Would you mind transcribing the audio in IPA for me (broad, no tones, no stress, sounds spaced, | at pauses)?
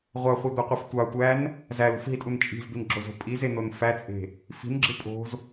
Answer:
ʁʷ ɑ χʷ e d̪ o qʷ e f tʷ ɑ tʷ æ n | z æ l ṳ f ɦ i tʼ u n t͡ʃʼ i̤ z d̪ i n ɡ͡ǁ o z o̤ pʼ i z e n o n f æ t͡sʼ e̤ | f i̤ n ɡ͡ǁ ɯ pʼ o̤ z